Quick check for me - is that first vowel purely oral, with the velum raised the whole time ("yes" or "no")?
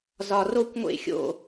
yes